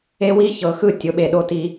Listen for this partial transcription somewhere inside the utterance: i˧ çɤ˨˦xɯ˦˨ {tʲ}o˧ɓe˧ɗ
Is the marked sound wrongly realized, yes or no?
no